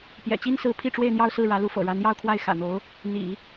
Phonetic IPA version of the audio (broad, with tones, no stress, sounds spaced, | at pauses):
p j ɛ̰˨˩ t͡ɕ i˥ n s ɹ̩˧˥ pʰ i˥˧ ʈ͡ʂ w e˥˧ ɪ̯ n̪ j ɑ˥˧ ʊ̯ s ɹ̩˥˩ ɻ ä˧˥ l u˧˥ f ɤ̰˨˩ ɻ a˧˥ n j ɑ˥˧ ʊ̯ kʰ w a˥˩ ɪ̯ x ä̰˨˩ n̪ o˧˥ ʊ̯ | n̪ ḭ˨˩˦